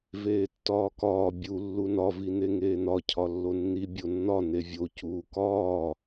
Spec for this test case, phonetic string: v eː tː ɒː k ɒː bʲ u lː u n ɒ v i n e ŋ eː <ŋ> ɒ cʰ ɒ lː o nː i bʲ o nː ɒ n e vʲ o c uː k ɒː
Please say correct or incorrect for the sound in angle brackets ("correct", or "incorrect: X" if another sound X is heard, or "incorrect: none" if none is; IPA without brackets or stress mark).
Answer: incorrect: n